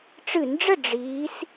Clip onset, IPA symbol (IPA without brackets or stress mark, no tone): ʈ͡ʂ